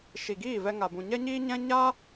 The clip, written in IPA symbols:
ʃ i˨ ɡ iː˦˨ v ɛ˧ ŋ a˨ b ũ˨ ɲ ɛ˦ ɲ iː˦ ɲ ɛ̃˦ ɲ a˦

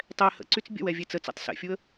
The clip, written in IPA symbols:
tˤ ɛ h ə̰ ǀ y t͡s bʲ ə̰ w ɛ vʲ e t͡s ə t͡s ɛ̰ tˤ s ɛ̰ fʲ u ə̯

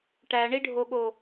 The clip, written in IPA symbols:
ʈ æ ɳ i ɖʱ o ɠ o

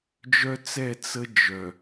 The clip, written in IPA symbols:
d͡ʒ œ˦ t͡s ɛ˦˨ t͡s ə˦ d͡ʒ œ˨

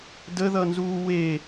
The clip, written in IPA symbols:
d ə ð ʌ n z uː w e

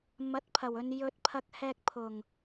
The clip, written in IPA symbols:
m ɐ˨˥ t̚ pʰ ɐ˨˩ w ɵ˨ n j ɵ˨ t̚ pʰ ɐ˧ k̚ h ɛː˧ k̚ pʰ ʊ˨˩ ŋ

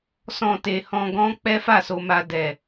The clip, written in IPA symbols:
s ɔ̃˧ t e˨ h ɔ̃˧ ɡ ɔ̃˦ k͡p ɛ˦ f a˦˨ s o˧ m a˧ d ɛ˨

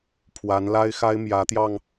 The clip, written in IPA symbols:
pʰ w a˧˥ n l a˥ ɪ̯ x a˥ ɪ̯ m j ä˧˥ t̪ j ɑ˧ ŋ

